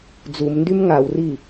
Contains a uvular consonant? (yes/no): no